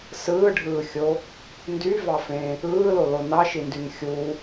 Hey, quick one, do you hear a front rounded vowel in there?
yes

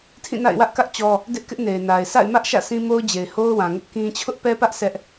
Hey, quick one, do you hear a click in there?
no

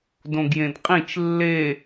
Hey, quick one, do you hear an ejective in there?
yes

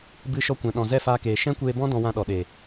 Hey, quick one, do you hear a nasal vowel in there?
yes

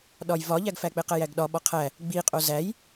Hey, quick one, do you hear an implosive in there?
yes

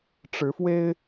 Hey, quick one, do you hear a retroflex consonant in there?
yes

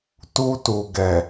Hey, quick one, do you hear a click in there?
no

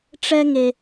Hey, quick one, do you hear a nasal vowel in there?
no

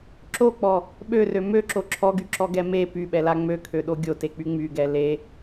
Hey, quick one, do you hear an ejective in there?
no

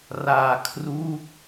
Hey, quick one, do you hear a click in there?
no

